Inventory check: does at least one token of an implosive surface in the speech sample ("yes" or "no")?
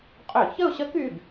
no